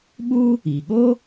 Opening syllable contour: high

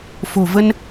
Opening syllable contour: low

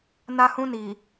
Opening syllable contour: high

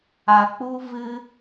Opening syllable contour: low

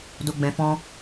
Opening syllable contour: low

